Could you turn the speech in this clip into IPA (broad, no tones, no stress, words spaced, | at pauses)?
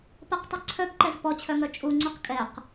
pɐqtˤɨ ǀʰœbǃɛz pɔt͡ɕʰœŋœ t͡ʃʼuŋ͡ǀuq kʼɛq